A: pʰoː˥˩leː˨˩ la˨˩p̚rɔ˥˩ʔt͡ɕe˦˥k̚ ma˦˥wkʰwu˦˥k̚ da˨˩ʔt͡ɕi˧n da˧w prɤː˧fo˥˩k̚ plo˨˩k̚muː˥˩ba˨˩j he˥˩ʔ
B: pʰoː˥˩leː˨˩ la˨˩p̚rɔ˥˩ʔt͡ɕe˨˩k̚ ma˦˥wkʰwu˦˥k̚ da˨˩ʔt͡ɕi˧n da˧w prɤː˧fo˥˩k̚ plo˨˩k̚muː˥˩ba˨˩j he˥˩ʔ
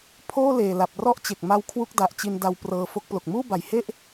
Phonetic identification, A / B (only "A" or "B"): B